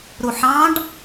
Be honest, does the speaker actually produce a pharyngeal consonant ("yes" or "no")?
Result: yes